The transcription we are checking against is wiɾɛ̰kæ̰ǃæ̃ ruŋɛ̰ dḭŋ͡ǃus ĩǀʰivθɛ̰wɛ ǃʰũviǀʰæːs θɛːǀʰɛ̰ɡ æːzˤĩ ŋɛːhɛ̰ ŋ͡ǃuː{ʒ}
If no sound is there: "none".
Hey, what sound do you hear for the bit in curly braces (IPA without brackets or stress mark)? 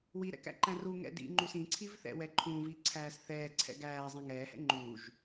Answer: ʒ